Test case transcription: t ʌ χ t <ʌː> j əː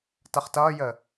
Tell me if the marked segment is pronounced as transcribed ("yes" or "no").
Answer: yes